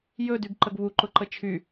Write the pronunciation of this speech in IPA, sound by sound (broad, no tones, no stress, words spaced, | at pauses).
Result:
jɵdyɡ ǃəɡβuǃʊ ǃət͡ʃʰy